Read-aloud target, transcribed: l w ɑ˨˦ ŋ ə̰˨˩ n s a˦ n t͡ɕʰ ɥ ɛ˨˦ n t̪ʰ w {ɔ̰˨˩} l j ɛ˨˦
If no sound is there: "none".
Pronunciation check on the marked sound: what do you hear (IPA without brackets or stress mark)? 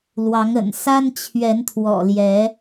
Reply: ɔ̰˨˩